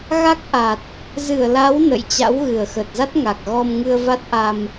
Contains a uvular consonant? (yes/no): no